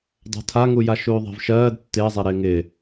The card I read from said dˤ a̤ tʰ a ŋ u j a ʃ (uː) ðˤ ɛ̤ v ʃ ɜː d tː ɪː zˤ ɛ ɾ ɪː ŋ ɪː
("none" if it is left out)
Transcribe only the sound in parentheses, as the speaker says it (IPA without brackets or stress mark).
uː